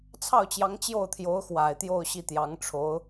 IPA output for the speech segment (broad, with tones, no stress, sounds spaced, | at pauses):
t͡sʰ ɑ˥˩ ʊ̯ t͡ɕ j ɑ˧˥ ŋ t͡ɕ j o˥˩ ʊ̯ t̪ʰ j o˧˥ ʊ̯ x w a˨˩ ɪ̯ t̪ j o˥˧ ʊ̯ ɕ i˥˩ t̪ j ɑ˧˥ ŋ ʈ͡ʂʰ o˧˥ ʊ̯